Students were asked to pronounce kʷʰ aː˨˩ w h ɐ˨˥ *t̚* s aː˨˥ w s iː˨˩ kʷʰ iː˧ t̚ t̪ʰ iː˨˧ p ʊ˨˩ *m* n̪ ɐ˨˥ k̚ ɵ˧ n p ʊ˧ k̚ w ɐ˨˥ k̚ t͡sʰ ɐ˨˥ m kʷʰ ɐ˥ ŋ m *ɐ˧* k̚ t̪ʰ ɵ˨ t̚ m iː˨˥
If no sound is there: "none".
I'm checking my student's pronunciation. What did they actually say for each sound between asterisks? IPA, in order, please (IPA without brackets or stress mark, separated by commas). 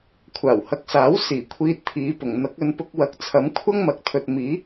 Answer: k̚, ŋ, ɐ˨˥